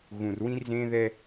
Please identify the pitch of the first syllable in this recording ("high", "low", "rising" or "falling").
low